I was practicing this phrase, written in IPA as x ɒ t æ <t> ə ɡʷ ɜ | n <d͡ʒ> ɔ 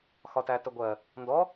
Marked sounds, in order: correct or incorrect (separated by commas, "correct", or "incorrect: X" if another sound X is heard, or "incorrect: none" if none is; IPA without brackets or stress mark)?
correct, incorrect: d